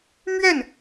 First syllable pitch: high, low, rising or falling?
falling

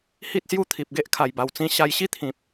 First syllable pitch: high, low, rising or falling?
high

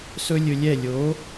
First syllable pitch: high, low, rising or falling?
high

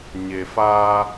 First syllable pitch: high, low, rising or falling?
low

